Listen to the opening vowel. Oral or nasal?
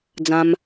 nasal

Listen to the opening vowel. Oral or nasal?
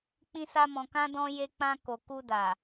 nasal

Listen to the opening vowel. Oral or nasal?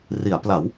oral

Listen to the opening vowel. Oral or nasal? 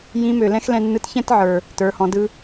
nasal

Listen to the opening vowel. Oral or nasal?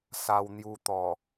oral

